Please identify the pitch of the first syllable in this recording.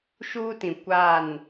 high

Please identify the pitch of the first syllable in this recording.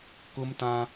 high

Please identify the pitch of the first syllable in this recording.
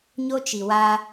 high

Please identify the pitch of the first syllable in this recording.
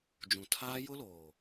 low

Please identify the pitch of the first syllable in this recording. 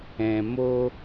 low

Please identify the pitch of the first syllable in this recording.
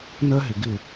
high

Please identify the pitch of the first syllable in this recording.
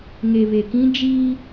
low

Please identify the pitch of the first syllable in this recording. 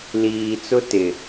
low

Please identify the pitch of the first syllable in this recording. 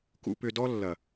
low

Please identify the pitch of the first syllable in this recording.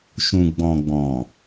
low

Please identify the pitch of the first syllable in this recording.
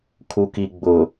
low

